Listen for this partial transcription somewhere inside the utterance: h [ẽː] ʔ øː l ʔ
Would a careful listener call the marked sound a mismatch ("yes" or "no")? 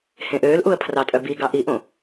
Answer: yes